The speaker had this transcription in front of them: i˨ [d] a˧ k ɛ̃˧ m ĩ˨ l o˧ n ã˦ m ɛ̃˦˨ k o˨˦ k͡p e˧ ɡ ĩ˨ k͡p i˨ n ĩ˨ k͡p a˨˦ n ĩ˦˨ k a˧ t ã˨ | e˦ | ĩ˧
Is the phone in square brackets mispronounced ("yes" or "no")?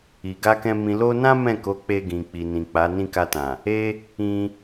yes